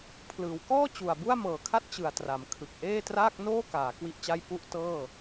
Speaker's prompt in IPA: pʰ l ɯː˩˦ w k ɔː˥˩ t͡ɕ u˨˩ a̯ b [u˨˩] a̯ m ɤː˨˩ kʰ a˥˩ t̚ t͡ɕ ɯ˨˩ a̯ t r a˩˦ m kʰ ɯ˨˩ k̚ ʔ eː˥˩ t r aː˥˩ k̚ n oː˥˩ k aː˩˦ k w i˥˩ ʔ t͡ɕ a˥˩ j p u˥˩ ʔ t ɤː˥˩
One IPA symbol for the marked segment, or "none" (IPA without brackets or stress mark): u˥˩